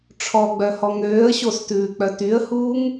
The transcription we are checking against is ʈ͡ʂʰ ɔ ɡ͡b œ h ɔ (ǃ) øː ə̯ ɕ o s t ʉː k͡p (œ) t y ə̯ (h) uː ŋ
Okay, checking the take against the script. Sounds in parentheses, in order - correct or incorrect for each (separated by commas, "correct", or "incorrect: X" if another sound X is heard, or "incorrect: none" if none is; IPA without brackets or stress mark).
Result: incorrect: ŋ, correct, correct